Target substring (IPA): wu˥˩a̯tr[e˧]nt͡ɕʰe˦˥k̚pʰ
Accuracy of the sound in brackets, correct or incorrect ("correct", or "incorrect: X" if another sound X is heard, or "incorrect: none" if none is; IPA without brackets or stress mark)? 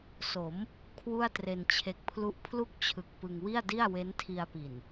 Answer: correct